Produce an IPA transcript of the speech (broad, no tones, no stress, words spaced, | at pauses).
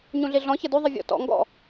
ɲũɮiɮɔ̃ çɐdʉ ðˤivʲɔ̰ tɔ̰ ŋɡɔ̰